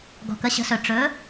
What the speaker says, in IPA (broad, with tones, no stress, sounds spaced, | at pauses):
ɡ ɔ̤˩ k ə˩˥ ɕ ə̤˩˥ s ɵ˩ ʈ͡ʂ ɵ˩˥